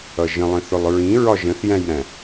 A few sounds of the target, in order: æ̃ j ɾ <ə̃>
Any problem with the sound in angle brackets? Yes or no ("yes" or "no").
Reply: yes